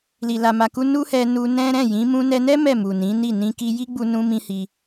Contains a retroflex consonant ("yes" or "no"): no